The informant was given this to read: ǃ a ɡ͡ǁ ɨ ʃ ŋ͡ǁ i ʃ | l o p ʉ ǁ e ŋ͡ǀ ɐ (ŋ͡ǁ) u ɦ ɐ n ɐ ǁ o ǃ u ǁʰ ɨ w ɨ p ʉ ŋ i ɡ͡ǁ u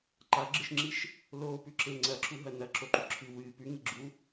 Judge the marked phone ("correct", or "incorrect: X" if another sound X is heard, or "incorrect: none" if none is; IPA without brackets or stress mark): incorrect: ǁ